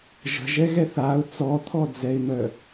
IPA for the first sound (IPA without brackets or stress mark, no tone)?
ʒ